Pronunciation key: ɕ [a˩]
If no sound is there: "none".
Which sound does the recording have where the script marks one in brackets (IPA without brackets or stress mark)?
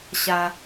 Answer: a˩